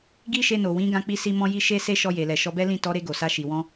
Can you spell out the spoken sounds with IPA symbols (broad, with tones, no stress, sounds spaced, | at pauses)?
ɡ i˦ ʃ e˧ n o˨ w ĩ˨˦ ɡ ã˦ k͡p i˦ s i˦ m ɔ̃˦ j i˦ ʃ e˦ s e˦ ʃ ɔ˧ j e˨ l ɛ˨ ʃ ɔ˧ b ɛ˦ l ĩ˦˨ t ɔ˨˦ ɾ e˧ ɡ o˨ s a˧ ʃ i˨ w ɔ̃˧